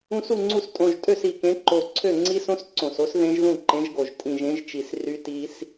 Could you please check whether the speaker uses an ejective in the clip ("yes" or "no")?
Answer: yes